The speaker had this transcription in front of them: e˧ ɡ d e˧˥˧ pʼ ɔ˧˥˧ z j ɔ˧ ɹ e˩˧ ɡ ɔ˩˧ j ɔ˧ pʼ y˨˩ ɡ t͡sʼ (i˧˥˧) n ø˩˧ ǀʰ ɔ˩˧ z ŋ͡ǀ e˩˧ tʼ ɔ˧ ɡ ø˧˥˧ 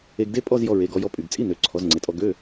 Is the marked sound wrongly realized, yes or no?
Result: no